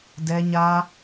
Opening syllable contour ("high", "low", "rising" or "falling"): high